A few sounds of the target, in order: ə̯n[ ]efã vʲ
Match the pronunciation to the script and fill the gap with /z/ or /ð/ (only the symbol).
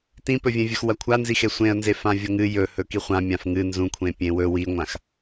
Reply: z